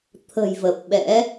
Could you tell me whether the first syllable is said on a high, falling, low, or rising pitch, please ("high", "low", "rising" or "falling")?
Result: low